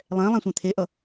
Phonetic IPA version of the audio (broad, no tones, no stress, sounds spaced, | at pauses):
lˠ ɛ̃ lˠ ã sʷ ɛ̃ t̪ʰ e ʔ ʌ